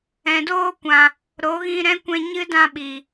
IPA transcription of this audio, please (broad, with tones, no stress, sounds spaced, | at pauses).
ɛ̃˨ d oː˧ kʷ ã˨ | ɾ o˨˦ ɣ ĩ˧ ɾ ɛ̃˦ kʷ ɛ̃˧ ɲ ɨ˦ d ã˧ ɓ i˨